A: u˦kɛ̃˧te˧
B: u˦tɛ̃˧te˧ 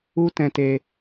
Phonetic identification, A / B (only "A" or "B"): B